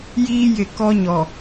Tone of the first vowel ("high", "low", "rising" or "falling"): high